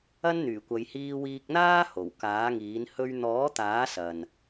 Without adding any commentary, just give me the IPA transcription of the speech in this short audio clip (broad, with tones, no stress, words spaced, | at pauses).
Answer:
ɐ˥nn̪yː˨˩kʷɐ˨˧j hiː˧wiː˧k̚n̪aː˥ ho˨˩wkaː˨˥ŋiː˨˥n hɵ˧ɥ n̪ɔː˨˥t̪aː˨˥ sɐ˨n